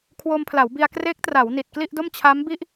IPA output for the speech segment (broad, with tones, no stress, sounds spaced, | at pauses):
kʰ w o˧ m pʰ l a˩˦ w b i˧ a̯ k r eː˦˥ k̚ t r a˩˦ w n i˨˩ t̚ k l i˥˩ ʔ d o˥˩ m t͡ɕʰ a˦˥ m b i˥˩ ʔ